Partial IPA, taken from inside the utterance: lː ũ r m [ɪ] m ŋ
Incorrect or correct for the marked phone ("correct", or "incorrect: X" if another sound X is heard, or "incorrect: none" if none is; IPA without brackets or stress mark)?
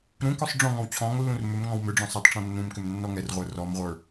incorrect: ʏ